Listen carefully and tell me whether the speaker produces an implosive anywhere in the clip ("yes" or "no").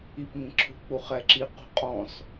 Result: no